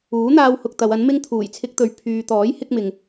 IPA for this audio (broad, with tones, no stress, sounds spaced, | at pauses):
uː˨˥ n̪ aː˧ w h ʊ˨ k̚ t̪ ɐ˨˧ w ɐ˨˥ n m ɪ˥ ŋ t̪ʰ uː˨˩ j t͡sʰ ɪ˧ k̚ t̪ ɵ˨ ɥ pʰ yː˨ t̪ ɔː˨˥ j h ɪ˥ k̚ m ɪ˨ ŋ